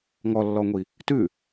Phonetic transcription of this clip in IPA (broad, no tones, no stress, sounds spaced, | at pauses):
ŋ ɔ lː ɔ ŋʷ i | t ʉ